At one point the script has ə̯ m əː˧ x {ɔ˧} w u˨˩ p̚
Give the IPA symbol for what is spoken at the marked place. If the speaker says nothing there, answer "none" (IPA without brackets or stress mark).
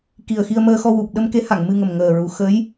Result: ɔ˧